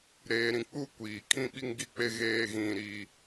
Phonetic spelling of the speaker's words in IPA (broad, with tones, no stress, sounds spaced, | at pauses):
ɾ eː˨ ɾ ĩ˨ k͡p u˦ kʷ iː˨ kʰ ĩ˦ ɓ i˦ ŋ ɡ i˦ k͡p e˦ ɣ eː˦ ɣ ĩ˦ ɾ i˦